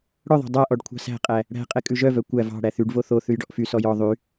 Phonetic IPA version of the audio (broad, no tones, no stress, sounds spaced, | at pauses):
ɽ œ ðˤ æ̤ dˤ æ ʔ ɔ ɖ kʷʰ ɑ̤ s æ̤ qʼ æ | ɽ æ̤ qʼ ɛ kʼ ʉ ʒ œ v œ kʷ æ v ɑ̤ ɽ æ θ y ɖ v o θ o θ ʉ j ɖ ɔ ʔ f y s ɔ j ɔ ðˤ y